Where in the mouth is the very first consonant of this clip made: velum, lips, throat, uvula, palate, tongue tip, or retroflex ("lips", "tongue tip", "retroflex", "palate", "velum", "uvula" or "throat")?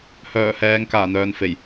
throat